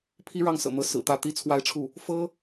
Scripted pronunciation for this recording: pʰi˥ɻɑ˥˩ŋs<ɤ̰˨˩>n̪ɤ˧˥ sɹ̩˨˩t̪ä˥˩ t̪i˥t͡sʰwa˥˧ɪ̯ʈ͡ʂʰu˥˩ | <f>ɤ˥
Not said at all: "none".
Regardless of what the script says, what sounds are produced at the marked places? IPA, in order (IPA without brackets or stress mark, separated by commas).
ɤ̰˨˩, f